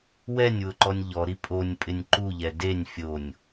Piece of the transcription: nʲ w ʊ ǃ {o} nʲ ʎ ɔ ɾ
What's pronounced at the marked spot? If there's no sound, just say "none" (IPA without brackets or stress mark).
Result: ɔ